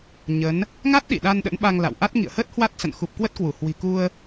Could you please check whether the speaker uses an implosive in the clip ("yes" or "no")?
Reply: yes